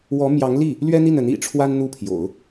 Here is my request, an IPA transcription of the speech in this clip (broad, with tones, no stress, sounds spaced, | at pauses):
w ɔ˧˥ m j ɑ˧˥ ŋ l i˥˩ | l ɥ ɛ˥ n̪ i˥˩ n ə˧˥ n ḭ˨˩ ʈ͡ʂʰ w a˥ n n̪ u˥˩ pʰ j o̰˨˩˦ ʊ̯